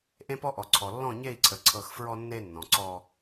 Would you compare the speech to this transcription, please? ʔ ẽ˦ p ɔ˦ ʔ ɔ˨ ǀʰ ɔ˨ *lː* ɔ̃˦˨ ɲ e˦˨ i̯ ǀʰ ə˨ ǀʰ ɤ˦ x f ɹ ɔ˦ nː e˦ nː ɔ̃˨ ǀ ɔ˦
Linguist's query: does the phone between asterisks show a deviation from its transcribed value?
no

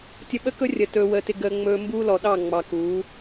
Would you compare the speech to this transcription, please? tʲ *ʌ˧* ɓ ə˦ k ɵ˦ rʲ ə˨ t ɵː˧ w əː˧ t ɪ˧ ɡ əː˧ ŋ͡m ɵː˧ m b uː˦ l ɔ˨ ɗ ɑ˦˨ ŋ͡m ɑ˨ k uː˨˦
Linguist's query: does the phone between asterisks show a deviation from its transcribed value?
yes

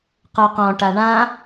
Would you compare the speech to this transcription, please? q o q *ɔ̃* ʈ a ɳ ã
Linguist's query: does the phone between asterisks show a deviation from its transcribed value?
no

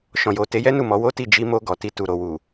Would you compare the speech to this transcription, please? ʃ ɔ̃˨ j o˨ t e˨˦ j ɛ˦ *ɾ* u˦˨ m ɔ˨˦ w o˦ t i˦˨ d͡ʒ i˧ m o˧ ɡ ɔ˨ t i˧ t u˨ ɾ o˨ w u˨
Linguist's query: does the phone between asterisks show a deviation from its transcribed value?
yes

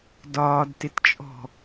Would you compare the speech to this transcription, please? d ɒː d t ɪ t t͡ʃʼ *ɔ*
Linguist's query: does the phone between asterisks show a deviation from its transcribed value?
yes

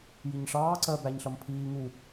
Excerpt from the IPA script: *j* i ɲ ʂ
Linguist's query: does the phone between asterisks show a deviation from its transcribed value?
no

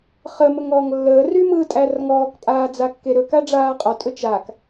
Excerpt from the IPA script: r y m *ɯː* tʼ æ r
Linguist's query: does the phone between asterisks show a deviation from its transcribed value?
no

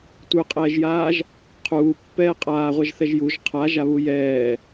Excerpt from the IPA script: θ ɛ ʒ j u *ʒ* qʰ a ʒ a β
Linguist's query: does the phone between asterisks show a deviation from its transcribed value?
no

